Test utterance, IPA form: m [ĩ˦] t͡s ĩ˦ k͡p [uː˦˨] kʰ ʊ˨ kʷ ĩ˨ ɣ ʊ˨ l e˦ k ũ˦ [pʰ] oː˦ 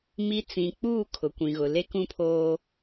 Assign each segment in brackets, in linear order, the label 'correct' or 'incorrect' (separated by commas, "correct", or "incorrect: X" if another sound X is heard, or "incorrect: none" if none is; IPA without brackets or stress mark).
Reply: incorrect: i˦, correct, correct